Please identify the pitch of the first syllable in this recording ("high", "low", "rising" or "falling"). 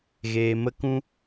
low